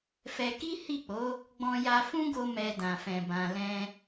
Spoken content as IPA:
f ɛ˧ k i˦ h i˦˨ k͡p o˨˦ | ɡ͡b ɔ̃˧ j a˧ f ũ˦ ɡ o˦ m ɛ˧ d ã˨ f ɛ̃˨ b ã˨ l ɛ̃˧

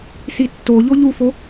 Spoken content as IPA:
s i tː o ʎ o ʎ u f o

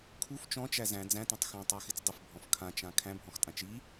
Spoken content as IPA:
kʰ u f t͡ʃ ɔ̃ t͡ʃ æ z æ̃ d͡z æ̃ t æ̃ tˤ x ɔ̃ tˤ a x ɪ t͡s dˤ ɪ f bʱ ɔ̃ f kʰ ã t͡ʃ ã kʰ æ̃ bʱ ɔ̃ x tʼ ã t͡ʃ i

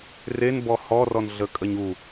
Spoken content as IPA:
r e n b ɔ h ɔ r ɔ n ɮ ə kʼ ə ɲ u

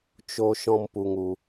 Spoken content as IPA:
t͡ʃ o˦ ʃ ɔ̃˦ m p u˧ ŋ u˧

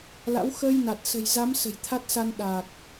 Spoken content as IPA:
l a̰˧˥ w x əː˧ j n a˨˩ t̚ s ə̤˨˩ j z a˨˦ m s ə̤˨˩ j t̪ʰ a˦˥ t̚ s a˧ n ɗ aː˨˩ k̚

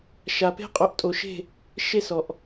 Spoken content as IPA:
ʃ a˨ p e̤˦ qʼ o˨ ʔ tʼ o˨ ʃ e̤˦˨ | ʃ e˦ s ɔ˨ ʔ

